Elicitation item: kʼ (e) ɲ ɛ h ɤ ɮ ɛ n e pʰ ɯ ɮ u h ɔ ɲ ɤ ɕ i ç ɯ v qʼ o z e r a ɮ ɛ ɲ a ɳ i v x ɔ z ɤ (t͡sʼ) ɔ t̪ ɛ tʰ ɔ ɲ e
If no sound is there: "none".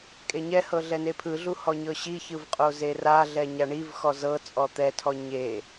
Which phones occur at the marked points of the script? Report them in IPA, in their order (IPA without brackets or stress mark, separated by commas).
e, t͡sʼ